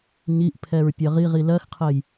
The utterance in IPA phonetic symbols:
ɲ i ʔ pʰ ɛ ɹ pʲ ɜ ʁ i ʁ i l ɜ x qʰ ɜ j

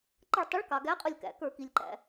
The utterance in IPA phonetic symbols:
ǃ ə˧˩ ɭ tˤ ʊ˨˥ ɭ k ɑ˩ ɡ æ˨˥ qʼ ʊ˧˩ lʲ k æ̰˩ k ə˞˧˩˧ k i˩ lʲ ǃ æ̰˩

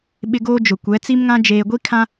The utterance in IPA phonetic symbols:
ɓ ɪ˦ ɡ oː˦ d͡ʒ ʊ˨ kʷ ɛ˨˦ t͡s i˦ m ŋ ã˦ d͡ʒ eː˨ ɡʷ i˦ kʰ ã˦

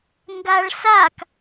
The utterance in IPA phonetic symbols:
ŋ ɡ a ɭ s a k

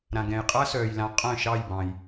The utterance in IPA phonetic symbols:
ɾ ã˩ ɡ ɛ̃˩ j qʼ a˥ s œː˩ j l ã˩˥ qʼ œ̃˥˩ ʃ ɑ˥˩ j b ɑ̃˩ j

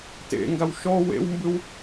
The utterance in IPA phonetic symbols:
t ḛ ŋ ɡ a w ʃ ɔ w ḛ w m b ɯ w

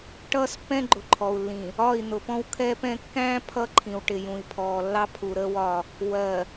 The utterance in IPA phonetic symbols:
ʈ ʌː˦ s pː ɛ̃˦ ɡ͡ǃ ʊ˨ ǃʰ ɔ˨ u̯ lː ĩ˨ | ɒ˦˨ i̯ n̪ ʊ˨ p ɔ̃˦ w kʰ ɛː˦ p ɛ̃˦ kː æ̃ː˦ pʰ ʌ˦ ǃʰ ĩ˨ w ʈ ɪ˨ j ũ˨ i̯ pʰ ɔː˨ lː ɑ˦ pʰ u˨ ɾ əː˦ w ɒ˦˨ | w ɜ˨

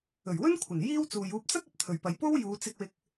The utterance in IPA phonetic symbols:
ɵ˨˩ ɥ w ɵ˥ n kʷʰ ɐ˨˩ n j iː˥ w t͡s uː˨ j uː˧ p̚ t͡s ɐ˥ k̚ ɐ˨ p̚ t̪ʰ ɵ˨ ɥ p ɐ˨ j p o˥ w j uː˨˧ t͡s ɪ˧ k̚ w ɪ˧ k̚

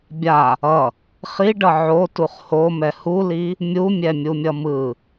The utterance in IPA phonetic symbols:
bʲ a | ʌ | χ i ɖ ʌ ʕ o t u χ h o m ɛ h u l i | mʲ u mʲ ɛ mʲ u mʲ ʌ m ɯ

